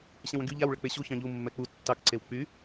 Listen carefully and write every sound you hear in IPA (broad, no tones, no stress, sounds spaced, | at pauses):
ɕ ɛ̃ w ə̃ ɡ y ʎ a w ɭ ə k͡p e ɕ u ç ɑ̃ ʎ u mː ɛ k͡p u tː ɑ k ǀ e w k͡p y